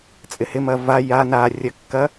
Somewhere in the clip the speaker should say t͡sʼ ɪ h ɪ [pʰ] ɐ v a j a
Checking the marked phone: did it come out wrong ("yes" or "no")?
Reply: yes